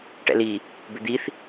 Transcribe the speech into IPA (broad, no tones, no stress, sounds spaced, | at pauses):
ʈ ɛ̰ l i | b ʏ d̪ i θ